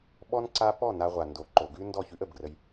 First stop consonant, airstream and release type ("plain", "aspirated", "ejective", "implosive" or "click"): implosive